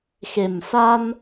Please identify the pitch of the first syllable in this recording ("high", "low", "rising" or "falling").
low